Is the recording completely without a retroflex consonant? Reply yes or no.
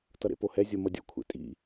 yes